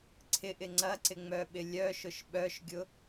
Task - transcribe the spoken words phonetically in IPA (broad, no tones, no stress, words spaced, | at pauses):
ǀʰɪʔɪ ŋ͡ǀɐǀɪŋ͡mœɓɪ lʲœʃʊʃ ɓœʃɡʲʊ